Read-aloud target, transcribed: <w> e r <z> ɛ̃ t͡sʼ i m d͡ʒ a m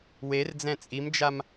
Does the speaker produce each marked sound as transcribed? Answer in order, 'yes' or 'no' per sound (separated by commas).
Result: yes, no